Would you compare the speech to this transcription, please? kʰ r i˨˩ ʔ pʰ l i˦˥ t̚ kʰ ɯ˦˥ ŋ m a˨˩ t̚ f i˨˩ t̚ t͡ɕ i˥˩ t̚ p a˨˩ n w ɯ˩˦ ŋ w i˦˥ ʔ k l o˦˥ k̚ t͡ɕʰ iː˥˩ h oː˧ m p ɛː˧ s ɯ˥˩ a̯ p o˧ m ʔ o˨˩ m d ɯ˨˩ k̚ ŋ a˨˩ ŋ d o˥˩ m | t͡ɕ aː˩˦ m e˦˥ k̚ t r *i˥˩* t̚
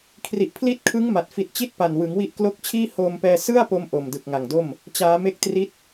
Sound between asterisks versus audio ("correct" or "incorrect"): incorrect